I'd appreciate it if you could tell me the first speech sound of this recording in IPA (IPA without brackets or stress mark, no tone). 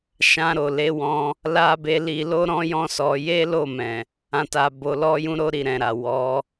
ʃ